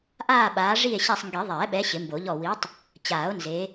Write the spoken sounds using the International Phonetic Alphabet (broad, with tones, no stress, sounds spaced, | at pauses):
ʔ aː˦˨ ɓ aː˨˦ ʐ i˦˨ e̯ ɕ a˦˨ sˤ ŋ ɡ i˨˩˦ ðˤ ɛː˨˩˦ ɓ ɛ˨˦ ɕ ɪ˨˩˦ m b o˨˩˦ ʎ ɔ˦˨ w i˨˦ tˤ | t͡ɕ aː˨˩˦ o̯ n z e˨˦